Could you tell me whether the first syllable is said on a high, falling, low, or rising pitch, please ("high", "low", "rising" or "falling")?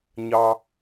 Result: high